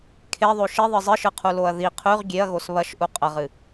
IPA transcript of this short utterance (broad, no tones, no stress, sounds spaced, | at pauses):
kʰ e ðˤ o ʃ i ðˤ ɨ zˤ ɨ ʃ ɨ qʰ u l o ɐ̯ ð i qʰ ʉ ʁ ɡʲ e ɐ̯ ɣ o s β ɐ ʃ ʔ u qʼ ɐ ʁ ɨ